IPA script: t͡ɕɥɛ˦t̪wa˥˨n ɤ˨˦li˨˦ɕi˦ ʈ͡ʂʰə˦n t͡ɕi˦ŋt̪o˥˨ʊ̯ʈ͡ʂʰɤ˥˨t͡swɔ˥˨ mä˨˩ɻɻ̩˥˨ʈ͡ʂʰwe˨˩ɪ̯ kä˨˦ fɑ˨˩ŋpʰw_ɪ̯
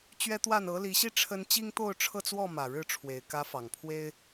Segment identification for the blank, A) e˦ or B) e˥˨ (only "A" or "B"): A